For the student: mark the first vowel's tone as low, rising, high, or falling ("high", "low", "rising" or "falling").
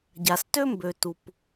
low